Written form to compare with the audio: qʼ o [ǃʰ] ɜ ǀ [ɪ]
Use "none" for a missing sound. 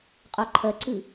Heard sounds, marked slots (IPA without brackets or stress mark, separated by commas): ǃʰ, ɨ